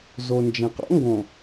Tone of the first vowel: low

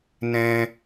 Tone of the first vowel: high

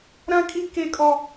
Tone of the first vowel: high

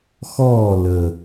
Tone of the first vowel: falling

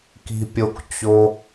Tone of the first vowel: low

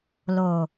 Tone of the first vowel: low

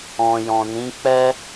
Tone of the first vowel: low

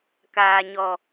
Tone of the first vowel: low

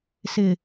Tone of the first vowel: low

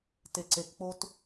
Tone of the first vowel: low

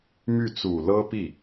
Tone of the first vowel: falling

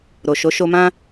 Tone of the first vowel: low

